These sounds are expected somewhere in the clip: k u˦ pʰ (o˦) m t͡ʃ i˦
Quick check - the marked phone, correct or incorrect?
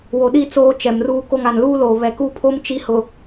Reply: correct